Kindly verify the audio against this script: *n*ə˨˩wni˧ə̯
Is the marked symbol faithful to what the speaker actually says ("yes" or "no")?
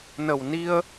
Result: yes